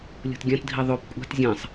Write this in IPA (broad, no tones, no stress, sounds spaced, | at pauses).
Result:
lʲ o̤ t ɡʲ ã t dʱ i ðˤ o p kʷʼ a̤ t zʲ ã sˤ